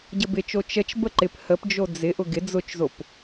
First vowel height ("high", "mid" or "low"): mid